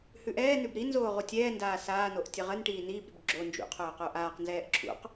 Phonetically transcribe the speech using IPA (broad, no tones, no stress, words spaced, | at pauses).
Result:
hʉʔɛːnʉb ɾinzoː ʁutʲɛːndaː saːnoʔ tʲəʁənʈiː niːbɾʉb ɡ͡ǁo nd͡ʒṵ qʰoːqoʔaːqnzɛːʔ ǁʰṵq